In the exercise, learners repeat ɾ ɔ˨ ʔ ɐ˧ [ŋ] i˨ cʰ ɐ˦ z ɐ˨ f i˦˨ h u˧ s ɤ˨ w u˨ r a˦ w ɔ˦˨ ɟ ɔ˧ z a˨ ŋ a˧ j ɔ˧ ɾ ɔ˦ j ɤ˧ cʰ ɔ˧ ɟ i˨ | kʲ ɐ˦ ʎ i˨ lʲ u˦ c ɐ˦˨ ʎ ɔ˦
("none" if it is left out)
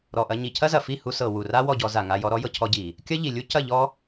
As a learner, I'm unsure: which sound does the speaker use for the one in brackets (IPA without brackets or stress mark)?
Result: ɲ